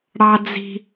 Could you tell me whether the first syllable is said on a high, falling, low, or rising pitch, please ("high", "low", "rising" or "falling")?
low